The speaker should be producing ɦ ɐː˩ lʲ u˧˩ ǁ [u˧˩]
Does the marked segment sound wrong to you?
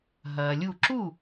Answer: yes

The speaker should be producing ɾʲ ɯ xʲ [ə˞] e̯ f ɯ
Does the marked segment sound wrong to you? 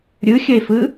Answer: yes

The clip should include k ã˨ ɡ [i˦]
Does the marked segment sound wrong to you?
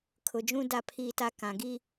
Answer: no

